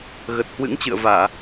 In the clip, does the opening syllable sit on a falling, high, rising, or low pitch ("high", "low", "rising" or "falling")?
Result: low